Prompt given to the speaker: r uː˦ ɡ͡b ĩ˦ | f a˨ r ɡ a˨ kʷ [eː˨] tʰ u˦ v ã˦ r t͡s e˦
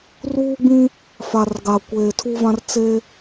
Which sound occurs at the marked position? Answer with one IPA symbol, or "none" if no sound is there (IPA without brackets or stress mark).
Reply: eː˨